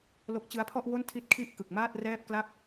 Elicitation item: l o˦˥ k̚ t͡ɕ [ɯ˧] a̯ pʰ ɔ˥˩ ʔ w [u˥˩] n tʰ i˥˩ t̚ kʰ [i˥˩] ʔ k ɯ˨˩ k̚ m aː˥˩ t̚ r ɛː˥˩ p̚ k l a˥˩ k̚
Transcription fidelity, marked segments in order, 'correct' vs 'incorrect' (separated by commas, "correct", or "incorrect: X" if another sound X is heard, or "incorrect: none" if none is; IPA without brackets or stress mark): incorrect: ɯ˦˥, incorrect: o˥˩, correct